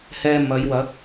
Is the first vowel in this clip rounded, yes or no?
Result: no